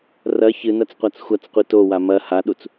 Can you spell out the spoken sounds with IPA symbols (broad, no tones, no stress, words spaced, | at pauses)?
rɐ çɨnɐt͡sqʷat͡s xʷɐt͡sqʷi towa mɐ haɗut͡s